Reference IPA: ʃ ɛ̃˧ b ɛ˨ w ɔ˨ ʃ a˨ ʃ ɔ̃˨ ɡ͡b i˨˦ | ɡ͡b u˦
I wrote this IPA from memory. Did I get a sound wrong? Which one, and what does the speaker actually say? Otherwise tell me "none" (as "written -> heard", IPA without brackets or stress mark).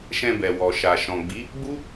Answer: none